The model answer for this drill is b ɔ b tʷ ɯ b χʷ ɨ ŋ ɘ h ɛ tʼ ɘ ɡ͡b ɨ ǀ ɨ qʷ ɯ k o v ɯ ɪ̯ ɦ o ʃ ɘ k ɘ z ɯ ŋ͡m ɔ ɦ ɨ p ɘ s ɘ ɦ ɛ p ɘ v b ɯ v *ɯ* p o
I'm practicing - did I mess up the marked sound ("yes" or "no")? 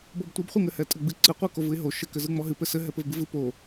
no